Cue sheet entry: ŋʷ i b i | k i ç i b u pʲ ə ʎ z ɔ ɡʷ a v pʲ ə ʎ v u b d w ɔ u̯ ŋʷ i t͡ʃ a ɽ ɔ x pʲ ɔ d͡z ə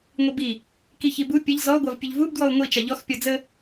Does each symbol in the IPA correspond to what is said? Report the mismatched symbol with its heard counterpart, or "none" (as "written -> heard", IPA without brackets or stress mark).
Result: ɽ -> ʎ